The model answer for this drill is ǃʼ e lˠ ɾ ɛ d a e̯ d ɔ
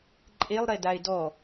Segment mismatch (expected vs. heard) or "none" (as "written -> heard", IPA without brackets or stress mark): none